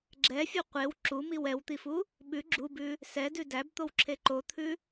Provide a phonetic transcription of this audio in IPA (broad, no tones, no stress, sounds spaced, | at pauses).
ɡ͡ǁ ɛ fʲ o qʷ e w ǁ u m i w ɛ w t̪ i f u | ɓ ʉ ɡ͡ǁ u b ʉ | s ɛ d ʉ d æ b t̪ o w ǁʰ e ǃ o t̪ʰ ʉ